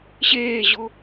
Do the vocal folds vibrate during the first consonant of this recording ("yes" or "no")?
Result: no